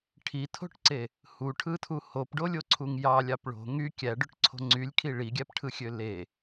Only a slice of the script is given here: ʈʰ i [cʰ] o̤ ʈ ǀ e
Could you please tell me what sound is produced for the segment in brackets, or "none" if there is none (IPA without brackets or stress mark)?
tʰ